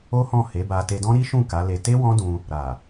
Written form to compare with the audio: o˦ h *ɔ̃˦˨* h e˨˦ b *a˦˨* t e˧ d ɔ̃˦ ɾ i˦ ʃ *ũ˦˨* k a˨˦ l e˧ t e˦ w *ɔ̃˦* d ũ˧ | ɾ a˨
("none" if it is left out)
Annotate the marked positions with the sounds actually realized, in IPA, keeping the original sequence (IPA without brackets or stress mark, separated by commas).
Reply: ɔ̃˦˨, a˧, ũ˦˨, ɔ̃˦